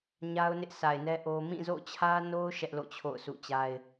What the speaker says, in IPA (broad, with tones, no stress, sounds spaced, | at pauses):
ɲ a˦ ʊ̯ n ɪ˦ ʔ sʰ a˨ ɪ̯ n ɛ˦ ʔ o˦ m ĩ˦˨ z o̰˦˨ t͡ɕʰ ä˦ n o˦ ʊ̯ ʃ ɛ˦ ʔ l o̰˦˨ t͡ɕʰ o̰˦˨ ʊ̯ sʰ ṵ˦˨ t͡ɕ a˦ ɪ̯